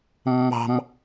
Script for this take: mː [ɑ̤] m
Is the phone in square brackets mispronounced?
no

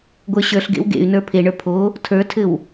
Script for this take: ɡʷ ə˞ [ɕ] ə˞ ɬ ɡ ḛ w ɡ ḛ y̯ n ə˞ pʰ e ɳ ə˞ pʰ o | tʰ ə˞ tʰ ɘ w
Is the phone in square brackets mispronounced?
no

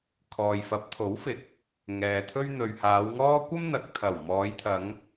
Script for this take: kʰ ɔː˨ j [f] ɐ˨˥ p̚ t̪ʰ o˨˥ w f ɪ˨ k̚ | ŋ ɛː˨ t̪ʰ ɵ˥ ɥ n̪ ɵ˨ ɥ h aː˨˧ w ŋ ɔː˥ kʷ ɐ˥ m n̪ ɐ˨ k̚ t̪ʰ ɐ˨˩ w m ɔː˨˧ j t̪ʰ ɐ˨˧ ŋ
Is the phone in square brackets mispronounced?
no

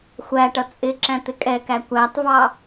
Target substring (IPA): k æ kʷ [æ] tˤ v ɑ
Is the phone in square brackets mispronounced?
no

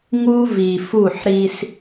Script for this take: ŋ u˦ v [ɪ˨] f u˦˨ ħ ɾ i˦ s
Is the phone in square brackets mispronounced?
yes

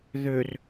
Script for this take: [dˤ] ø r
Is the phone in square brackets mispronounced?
yes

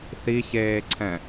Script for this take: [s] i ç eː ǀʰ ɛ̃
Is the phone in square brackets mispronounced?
yes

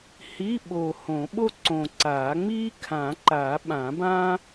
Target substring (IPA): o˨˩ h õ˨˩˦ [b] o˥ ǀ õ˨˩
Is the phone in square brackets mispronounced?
yes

